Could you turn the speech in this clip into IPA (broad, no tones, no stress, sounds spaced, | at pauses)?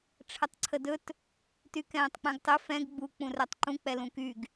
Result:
ʈ͡ʂʰ ə tˤ ǀʰ ə d ɵ t | t y k ɛ̃ː tˤ k͡p ɛ̃ ɡ tˤ ɵ f ɛ̃ ɡ ɡ͡b u k͡p ũ r ɛ tˤ ǃ ũ k͡p ɛ l ũ k y ɡ